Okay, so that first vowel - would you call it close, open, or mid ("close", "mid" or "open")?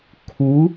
close